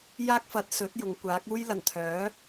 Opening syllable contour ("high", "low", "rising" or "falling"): high